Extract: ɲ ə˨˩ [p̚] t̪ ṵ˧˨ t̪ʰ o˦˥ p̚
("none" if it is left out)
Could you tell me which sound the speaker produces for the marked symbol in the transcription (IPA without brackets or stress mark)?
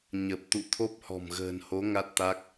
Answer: p̚